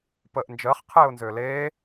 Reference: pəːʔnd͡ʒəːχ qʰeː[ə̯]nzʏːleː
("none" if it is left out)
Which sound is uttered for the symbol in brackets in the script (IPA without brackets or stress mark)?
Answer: ʊ̯